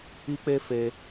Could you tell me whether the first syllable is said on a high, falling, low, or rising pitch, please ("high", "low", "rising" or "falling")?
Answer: high